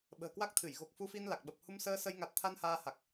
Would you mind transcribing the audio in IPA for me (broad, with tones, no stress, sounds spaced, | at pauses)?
ɓ ə̤ː˨˩ k w a˦˥ k̚ t̪ʰ ɨ˧˩ j ɣ o˨˩ k̚ f u˧ f i˧ n l a˨˩ k̚ ɓ ə˨˩ p̚ h u˧ m s əː˧ s ə˧ j ŋ a˨˩ t̚ t̪ʰ a˧ n h aː˧ h a˨˩ k̚